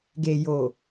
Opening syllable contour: low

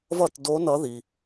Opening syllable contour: falling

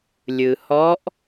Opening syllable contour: low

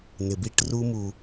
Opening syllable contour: low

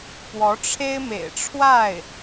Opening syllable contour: rising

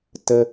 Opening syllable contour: high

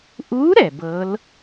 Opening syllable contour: rising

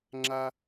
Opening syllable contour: high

